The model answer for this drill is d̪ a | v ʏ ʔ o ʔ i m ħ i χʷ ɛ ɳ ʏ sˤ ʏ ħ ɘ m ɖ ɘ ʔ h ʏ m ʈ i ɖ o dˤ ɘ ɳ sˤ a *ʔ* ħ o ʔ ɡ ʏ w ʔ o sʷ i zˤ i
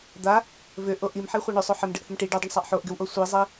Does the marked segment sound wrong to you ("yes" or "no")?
no